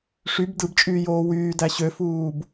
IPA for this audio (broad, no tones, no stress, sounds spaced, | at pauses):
ʂ y b d ɯ b t͡ʃʼ yː j oː w yː d æ ɕ ø f uː b